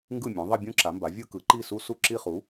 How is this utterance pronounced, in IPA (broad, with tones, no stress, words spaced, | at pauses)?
ŋɡɯ˥˩mʲũ˩˥ ðˤʌ˥˧bʲũ˥˧ǁa˩˥mba˩˥ vʲɯ˥˧ kɯ˩˥ ǃi˥˩su˥˧ su˥˩ǁi˥˧χu˩˥